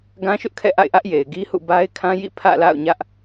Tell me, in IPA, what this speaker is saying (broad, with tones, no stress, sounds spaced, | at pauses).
ɡ ã˦ ʃ ʊ˦ ʔ kʰ ɛ̰˦˨ ʔ a̰˦˨ ɪ̯ ʔ ä˦ ʔ j e˨ ɪ̯ ɡ i˦ h ṵ˦˨ b a˦ ɪ̯ kʰ ã˦ j ḭ˦˨ pʰ ä̰˦˨ l a̰˦˨ ʊ̯ ɲ ä˦ ʔ